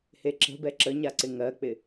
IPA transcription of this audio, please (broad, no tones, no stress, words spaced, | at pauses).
heǁə̤bɛ ǁəɲaǀɪ ŋɜk͡pɪ